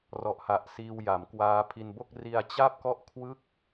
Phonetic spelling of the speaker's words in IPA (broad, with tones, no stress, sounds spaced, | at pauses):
r ɔ˨˩ ʔ h a˨˩ ʔ s iː˧ w j a˩˦ m k w aː˦˥ pʰ i˧ n b o˥˩ k̚ r i˧ a̯ t͡ɕ a˥˩ p̚ k ɔ˥˩ ʔ kʰ w ɯ˥˩ k̚